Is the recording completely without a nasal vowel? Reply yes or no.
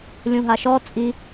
no